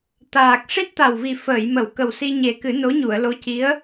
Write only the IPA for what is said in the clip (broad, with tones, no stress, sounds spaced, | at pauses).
t̪ aː˨˩ k̚ ʂ i˦˥ t̚ t̪ a˨˩ w v i˨˩ f əː˨˩˨ j m ə˨˩˨ w k ə˨˩ w s i˧ ɲ e˨˩ k ɨ˨˩˦ n o˧˥ ɲ u˨˩˨ ə̯ l o˧˥ c i˧˥ ə̯